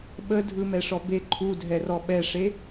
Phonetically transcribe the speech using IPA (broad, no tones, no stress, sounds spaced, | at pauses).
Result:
ɓ ə dʱ ɯ m ɛ ʂ ɔ b e ǃʰ u dʱ ɛ r ɔ ɓ ɛ ʂ e